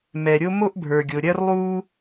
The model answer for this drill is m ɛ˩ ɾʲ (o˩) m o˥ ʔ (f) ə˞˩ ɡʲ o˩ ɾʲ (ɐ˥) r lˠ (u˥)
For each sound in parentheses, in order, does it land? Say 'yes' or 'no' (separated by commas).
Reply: no, no, yes, yes